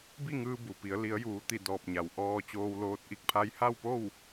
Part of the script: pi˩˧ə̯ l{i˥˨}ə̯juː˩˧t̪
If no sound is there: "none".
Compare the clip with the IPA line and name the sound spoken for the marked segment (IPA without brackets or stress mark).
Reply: i˩˧